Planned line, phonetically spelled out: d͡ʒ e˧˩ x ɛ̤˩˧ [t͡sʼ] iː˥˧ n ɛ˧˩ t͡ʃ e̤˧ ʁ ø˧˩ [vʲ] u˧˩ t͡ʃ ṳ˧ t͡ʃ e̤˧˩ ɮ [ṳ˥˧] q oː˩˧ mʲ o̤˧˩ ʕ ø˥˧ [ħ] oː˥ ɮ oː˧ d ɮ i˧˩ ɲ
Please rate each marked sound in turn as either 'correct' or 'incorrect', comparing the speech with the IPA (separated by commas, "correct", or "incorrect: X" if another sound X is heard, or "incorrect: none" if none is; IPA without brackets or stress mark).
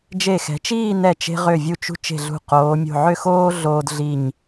incorrect: t͡ʃ, correct, incorrect: ṳ˧˩, incorrect: x